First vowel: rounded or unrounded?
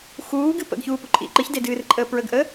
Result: rounded